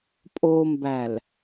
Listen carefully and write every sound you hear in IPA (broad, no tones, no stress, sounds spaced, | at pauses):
pʼ o m b æ l